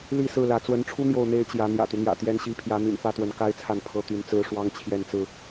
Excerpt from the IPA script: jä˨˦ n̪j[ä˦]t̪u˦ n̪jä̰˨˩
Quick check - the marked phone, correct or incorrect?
incorrect